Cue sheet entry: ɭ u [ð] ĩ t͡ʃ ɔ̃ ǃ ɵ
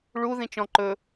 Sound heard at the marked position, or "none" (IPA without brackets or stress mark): ð